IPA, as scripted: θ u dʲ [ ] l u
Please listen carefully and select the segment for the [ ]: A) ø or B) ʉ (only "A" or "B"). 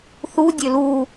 A